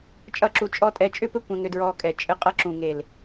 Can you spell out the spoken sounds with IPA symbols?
t͡ʃʼ ʌ˦˨ ǁ u˧ t͡ʃʼ ɔ˦ tʼ ɛ˧ t͡ʃʼ ʏ˦ p ɘ˦ kʷ ɛ̃˧ ŋ ɾ ʏ˧ d ɹ ɔː˧ kʼ ɛ˨ t͡ʃʼ ɘ˧ qʼ ʌ˧ ǁ ũ˨ ŋ e˨ l

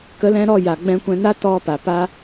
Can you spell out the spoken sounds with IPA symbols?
k ə˨˦ l ɛ̃˧ ɾ ɔ˦˨ j a˨ ɡ͡b ɛ̃˧ kʷ ɛ̃˧ n a˦ t ɔ˧ p a˨ p a˦

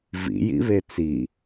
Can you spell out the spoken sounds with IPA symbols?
v ḭ j ḭ β e t͡s i

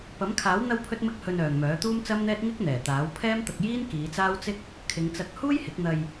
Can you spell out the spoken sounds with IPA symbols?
p ɐ˨˥ m kʰ aː˨˥ w n̪ ɐ˧ w pʰ ɵ˥ t̚ m ɪ˥ k̚ h ɵ˧ n œː˨ ŋ m œː˨˥ t̪ uː˥ m t͡s ɐ˥ m n̪ ɛː˥ t̚ ŋ ɪ˥ k̚ n̪ ɛː˨˩ t̪ aː˨˥ w pʰ ɛː˥ m t̪ ɐ˧ k̚ j iː˥ n k iː˨˧ t͡s aː˥ w t͡s ɪ˥ k̚ | kʰ ɪ˨˧ ŋ t͡s ɐ˧ k̚ h uː˥ j h ɪ˨˥ k̚ n̪ ɐ˧ j

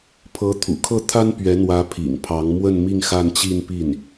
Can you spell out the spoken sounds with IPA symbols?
pʰ ɤ˧˥ t̪ʰ ṵ˨˩ kʰ ɤ˥˩ t̪ʰ a˥ n p ɥ ɛ˧˥ n̪ w ä˧˥ pʰ ḭ˨˩ ŋ pʰ ɑ˧˥ ŋ m w ə˥˧ n m i˥˧ ŋ x a˥˧ n t͡ɕ i˥˧ n p i˥˩ n

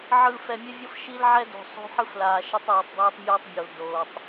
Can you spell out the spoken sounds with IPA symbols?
ʕ ɯ˨ f ɛ˨ mʲ ɛ˦ vʲ ɤ˦ f ʃ i˦ l ʕ ɛ˦ d o̤˨ sˤ o̤˦ ħ ɯ˦ f l aː˨ ʃ e˦ tˤ ɛː˨ tˤ dˤ ɛː˦ tˤ mʲ oː˦ tˤ bʲ o˨ l d oː˨ tˤ

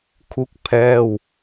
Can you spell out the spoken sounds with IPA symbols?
kʰ u˥˩ k̚ pʰ ɛː˥˩ w

